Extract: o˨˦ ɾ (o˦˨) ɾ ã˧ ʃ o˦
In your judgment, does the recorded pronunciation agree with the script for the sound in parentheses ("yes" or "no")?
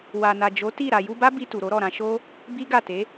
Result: no